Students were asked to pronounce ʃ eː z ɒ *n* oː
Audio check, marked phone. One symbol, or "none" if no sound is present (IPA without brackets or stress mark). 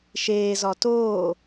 t